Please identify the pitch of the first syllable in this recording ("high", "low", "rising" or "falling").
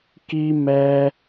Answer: high